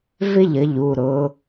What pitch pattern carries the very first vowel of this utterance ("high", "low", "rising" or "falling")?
falling